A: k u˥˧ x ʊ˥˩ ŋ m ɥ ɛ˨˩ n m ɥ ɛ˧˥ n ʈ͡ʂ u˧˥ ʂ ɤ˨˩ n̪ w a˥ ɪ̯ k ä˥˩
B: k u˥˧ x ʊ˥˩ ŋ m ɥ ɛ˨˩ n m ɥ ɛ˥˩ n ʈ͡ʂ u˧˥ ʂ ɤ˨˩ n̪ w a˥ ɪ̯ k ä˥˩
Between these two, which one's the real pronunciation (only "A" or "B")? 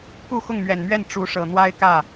B